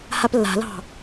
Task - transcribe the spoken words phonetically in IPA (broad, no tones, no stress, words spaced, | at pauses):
haplːa̤lɑ̤